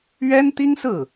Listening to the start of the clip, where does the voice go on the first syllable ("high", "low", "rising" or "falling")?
high